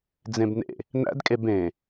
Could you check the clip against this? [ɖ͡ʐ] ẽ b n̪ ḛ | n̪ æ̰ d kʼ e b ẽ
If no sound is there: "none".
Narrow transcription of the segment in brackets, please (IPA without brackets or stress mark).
d͡z